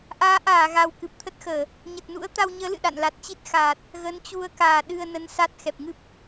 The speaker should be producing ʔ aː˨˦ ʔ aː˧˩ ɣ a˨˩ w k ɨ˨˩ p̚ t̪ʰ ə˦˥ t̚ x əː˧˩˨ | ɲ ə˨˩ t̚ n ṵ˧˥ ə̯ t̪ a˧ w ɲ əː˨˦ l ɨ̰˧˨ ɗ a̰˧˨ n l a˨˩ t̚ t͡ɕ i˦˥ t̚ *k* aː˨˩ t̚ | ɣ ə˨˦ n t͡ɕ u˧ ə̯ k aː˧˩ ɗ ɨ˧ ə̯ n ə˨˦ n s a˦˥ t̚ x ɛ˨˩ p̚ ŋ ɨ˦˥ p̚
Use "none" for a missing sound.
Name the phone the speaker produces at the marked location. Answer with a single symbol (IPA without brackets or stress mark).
x